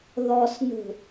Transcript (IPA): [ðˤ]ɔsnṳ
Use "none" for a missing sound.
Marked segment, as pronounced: ð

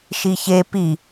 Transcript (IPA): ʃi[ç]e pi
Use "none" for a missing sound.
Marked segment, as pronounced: ç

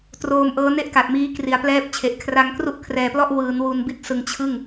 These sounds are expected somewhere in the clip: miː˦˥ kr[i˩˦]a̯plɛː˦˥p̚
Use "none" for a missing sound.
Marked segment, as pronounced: i˩˦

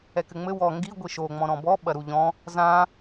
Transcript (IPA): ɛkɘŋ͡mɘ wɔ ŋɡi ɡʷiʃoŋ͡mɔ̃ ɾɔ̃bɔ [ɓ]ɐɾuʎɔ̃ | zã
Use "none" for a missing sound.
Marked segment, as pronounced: ɓ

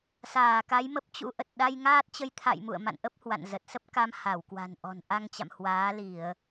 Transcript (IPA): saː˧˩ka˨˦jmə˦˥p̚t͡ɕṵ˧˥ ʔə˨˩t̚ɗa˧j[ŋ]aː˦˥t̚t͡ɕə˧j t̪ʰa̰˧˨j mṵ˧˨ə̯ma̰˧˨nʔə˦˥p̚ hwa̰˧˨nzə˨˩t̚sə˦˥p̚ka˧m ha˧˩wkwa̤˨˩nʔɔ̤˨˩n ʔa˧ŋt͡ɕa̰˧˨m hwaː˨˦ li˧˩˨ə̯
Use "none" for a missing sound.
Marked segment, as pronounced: ŋ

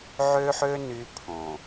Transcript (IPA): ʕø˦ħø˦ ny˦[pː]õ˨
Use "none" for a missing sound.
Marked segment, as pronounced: pʰ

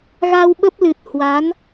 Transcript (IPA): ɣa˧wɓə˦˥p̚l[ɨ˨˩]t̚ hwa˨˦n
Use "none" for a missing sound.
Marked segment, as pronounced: ɨ˨˩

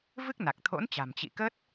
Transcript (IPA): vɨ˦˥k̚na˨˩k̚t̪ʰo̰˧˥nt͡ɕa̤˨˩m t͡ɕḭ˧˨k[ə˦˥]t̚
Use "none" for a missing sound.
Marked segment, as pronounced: ə˦˥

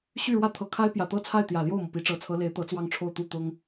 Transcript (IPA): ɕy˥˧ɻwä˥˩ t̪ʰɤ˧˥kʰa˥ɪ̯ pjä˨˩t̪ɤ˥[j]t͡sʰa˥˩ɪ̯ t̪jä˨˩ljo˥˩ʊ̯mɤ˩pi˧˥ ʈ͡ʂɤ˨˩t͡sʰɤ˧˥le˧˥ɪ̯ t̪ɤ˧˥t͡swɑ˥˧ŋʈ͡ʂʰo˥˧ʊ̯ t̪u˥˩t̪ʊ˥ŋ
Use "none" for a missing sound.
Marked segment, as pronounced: none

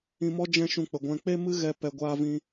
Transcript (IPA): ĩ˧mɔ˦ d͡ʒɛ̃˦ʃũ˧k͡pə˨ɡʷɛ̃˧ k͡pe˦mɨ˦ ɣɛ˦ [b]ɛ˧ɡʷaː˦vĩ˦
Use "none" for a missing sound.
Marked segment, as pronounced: p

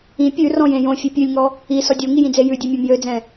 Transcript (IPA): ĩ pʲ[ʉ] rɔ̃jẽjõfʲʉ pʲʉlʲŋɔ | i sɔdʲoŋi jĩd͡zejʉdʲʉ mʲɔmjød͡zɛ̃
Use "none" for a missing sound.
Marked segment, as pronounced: ʉ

